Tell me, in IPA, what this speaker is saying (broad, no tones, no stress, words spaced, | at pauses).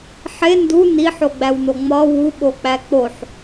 ħe ndu niħoɡ͡bæwno ŋ͡mɒ wuɓok͡pæ k͡poħ